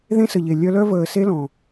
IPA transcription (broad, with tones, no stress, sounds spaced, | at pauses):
ð ẽ˦ s ə˨ ʎ e˨ lʲ œ˧ l œ˦ v əː˨ s e˦ l ɔ̃˨